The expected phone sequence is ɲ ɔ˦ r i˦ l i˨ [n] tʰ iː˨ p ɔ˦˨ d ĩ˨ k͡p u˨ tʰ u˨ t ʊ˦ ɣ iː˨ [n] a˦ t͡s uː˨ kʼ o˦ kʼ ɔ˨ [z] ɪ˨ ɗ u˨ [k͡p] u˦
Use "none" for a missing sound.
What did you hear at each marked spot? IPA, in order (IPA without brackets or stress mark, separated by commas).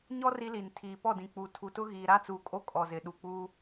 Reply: n, ɾ, z, k͡p